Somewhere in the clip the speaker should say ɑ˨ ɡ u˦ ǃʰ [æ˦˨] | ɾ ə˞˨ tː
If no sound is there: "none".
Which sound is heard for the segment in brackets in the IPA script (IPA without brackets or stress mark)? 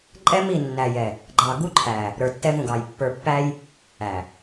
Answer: æ˨